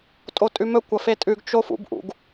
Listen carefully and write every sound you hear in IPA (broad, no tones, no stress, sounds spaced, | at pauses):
tʼ o tʼ ʉ m ɵ kʷ ɐ f e tʼ ʉ ɡ t͡ʃ o f ṵ b ʔ ṵ ɡ